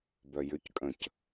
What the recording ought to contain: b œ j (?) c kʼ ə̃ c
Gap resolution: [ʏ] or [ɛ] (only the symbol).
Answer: ʏ